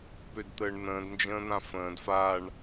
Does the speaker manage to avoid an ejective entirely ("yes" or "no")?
yes